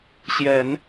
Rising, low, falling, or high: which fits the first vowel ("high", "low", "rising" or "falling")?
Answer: low